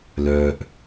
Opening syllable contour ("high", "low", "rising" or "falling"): low